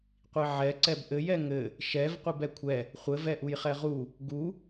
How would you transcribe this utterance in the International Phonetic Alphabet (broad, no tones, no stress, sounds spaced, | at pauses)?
qʷ i ʕ ɛ ǀ ɛ b ʔ ɘ j ɛ ŋ ɘ | ʃ ɛ v qʷ i b ɛ kʷʰ ɛ | χʷ ɘ v ɛ ʔ u j χ ɛ ʁ u | ɡ u